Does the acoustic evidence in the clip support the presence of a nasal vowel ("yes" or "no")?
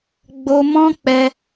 yes